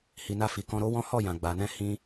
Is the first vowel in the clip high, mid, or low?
high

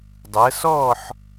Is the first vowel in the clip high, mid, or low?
high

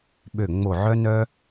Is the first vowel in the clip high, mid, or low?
mid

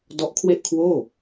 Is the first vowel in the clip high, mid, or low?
mid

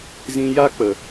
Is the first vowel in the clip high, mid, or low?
high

